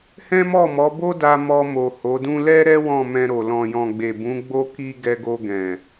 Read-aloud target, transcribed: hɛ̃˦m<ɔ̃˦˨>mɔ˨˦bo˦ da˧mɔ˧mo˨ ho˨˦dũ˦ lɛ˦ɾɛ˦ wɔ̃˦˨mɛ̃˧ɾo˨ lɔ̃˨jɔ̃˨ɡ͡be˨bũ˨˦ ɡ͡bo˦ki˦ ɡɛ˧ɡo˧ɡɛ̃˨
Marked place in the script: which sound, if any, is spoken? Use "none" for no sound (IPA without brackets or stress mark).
ɔ˦˨